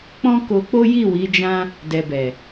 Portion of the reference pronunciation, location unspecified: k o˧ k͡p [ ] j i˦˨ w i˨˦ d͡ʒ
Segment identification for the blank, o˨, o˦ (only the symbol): o˦